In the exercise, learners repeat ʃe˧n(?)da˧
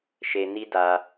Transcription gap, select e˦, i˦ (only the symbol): i˦